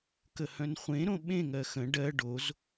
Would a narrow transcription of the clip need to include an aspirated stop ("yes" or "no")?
no